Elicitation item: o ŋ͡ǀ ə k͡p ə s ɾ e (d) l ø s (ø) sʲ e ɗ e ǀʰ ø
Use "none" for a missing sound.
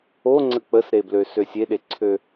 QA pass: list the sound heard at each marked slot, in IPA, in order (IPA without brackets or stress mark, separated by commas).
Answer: b, ø